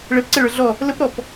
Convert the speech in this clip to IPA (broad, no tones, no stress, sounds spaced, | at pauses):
ɭ ɛ p ǀ ɛ ɭ ə˞ ɮ ɔ | l ə p ɾ ɔ p